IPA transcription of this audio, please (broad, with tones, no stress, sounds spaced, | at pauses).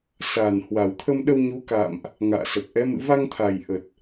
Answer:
s a˨˩ n h w a˨˩ w t̪ʰ ə˧ m ɗ ə˧ w ɲ u˨˦ k a̰˧˨ m ʔ | ŋ a̰ː˧˨ s ə˨˩ p̚ ʔ ɛ˨˦ m ɨ̰˧˨ v a˧ ŋ t̪ʰ a˨˩ j ʔ ə˨˩ t̚